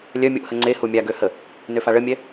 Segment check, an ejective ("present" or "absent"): absent